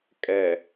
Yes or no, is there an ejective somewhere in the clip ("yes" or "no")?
yes